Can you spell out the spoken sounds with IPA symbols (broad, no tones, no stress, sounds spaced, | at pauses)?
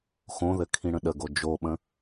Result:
x õ ð ɘ kʰ ĩ ɽ ə̃ ɗ ə ɡ o d͡ʒ o ɓ ə̃